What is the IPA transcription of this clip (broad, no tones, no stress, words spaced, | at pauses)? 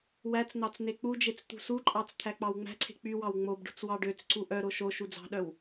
wæt͡sn̪ɑt͡s n̪ek͡pud͡ʒet͡s t̪ṳsuǃʼɑt͡s t̪ʰæk͡pɑwŋ͡mæ̤ǀʰe̤ k͡py wɑwŋ͡mobɖṳt͡s wɑɖøt͡sǀu ʔœɾo ʃo ʃud͡zɑ̤ɗœw